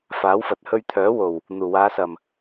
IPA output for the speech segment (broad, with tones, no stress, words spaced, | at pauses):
faː˨˥wfɐ˨t̚ hɵ˧ɥt̪ʰœː˨˥ wo˨˩w | n̪uː˨˩waː˨˧sɐ˨˩m